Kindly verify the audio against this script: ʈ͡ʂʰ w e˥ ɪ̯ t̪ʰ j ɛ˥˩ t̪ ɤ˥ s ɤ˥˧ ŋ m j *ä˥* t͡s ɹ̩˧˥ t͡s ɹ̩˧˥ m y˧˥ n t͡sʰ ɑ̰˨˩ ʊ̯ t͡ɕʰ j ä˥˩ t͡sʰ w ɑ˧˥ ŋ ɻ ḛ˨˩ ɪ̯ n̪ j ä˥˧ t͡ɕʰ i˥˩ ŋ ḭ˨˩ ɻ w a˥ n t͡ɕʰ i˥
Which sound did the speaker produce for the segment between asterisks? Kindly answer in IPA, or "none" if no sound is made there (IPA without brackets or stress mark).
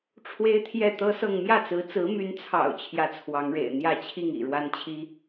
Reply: ä˥˩